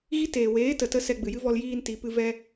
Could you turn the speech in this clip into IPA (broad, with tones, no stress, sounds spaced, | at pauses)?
ɣ i˧ t eː˨ w eː˨˦ t ə˨ t ə˧ s ɛ˧ ɡ͡b ɨ˨ j ɨ˦ v ɔ˧ l j iː˧ n t i˨ p ɨ˧ v ɛ˦